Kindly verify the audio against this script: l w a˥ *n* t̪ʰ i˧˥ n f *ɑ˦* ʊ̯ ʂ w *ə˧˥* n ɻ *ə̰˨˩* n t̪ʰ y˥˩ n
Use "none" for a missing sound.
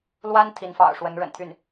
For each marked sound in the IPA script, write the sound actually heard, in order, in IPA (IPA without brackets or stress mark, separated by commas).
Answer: n, ɑ̰˨˩, ə˧˥, ə̰˨˩